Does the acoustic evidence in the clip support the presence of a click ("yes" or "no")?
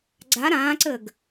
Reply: yes